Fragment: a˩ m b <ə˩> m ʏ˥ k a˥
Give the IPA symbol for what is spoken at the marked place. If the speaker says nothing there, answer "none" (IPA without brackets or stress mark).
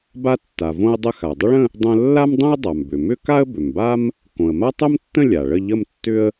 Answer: ʏ˩